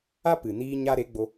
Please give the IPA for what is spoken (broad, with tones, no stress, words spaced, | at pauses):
a˦ pɨ˨ niː˧ɲa˧ ɾe˨˦ɡ͡bo˧